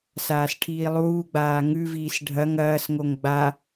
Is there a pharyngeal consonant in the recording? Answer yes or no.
no